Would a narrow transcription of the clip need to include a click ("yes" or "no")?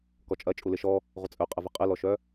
no